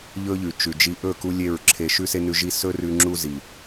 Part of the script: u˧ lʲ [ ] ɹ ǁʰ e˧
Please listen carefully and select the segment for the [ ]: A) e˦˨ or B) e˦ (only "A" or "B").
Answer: A